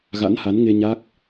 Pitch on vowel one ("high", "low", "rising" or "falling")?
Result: rising